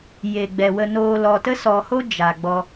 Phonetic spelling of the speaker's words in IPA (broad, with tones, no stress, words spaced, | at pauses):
je˨ ɡ͡bɛ˨wə˧noː˧ lɔ˨tə˦sɔ˨ho˦ d͡ʒa˨ɡ͡bɔ˧